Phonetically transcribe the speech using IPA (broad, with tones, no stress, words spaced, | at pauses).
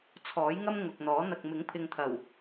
t͡sʰɔː˨˥jŋɐ˥m ŋʊ˨k̚n̪ɔː˨˥ n̪ɐ˨k̚ mɪ˨˥ŋpʰɪ˨ŋt̪ʰɐ˨˩w